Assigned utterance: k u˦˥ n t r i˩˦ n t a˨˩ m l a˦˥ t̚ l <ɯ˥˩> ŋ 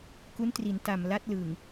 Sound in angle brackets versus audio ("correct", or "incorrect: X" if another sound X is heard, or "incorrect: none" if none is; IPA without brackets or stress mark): incorrect: ɯ˨˩